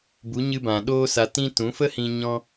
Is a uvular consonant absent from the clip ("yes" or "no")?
yes